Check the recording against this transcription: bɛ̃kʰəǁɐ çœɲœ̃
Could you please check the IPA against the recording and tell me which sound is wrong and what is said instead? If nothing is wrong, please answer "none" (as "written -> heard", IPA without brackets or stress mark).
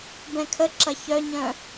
none